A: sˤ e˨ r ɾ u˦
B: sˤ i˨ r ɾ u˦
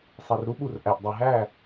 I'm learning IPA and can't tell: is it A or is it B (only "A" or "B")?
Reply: A